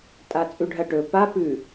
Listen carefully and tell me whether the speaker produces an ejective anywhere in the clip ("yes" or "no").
yes